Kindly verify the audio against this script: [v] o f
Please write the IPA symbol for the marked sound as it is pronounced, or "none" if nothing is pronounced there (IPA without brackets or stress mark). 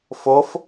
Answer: f